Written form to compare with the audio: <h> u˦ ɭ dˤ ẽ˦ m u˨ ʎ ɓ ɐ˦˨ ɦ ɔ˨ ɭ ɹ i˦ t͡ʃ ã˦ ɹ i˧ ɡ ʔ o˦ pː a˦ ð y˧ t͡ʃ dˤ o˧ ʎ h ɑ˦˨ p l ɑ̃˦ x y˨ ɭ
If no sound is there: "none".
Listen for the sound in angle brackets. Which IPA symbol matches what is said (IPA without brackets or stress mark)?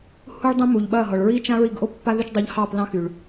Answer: h